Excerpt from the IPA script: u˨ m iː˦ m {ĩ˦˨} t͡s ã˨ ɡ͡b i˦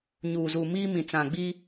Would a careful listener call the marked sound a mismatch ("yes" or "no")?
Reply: yes